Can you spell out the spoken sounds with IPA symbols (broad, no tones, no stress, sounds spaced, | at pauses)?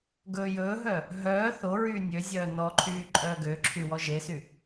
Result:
ɡ ɵː j ɵː ɦ œ | ɦ œː θ o ɹ yː nʲ ø zʲ œː n ɔ ǃʰ yː ǃʼ œː ɡ ø ǁʰ y w ɔ ʒ e s y